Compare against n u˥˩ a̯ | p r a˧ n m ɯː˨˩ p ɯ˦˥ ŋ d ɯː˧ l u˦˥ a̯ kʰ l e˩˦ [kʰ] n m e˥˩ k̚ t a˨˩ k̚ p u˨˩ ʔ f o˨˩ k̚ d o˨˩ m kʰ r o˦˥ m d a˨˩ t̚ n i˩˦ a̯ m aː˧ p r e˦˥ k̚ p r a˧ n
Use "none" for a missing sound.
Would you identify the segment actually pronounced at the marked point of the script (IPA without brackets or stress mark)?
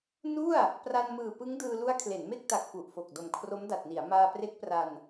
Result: none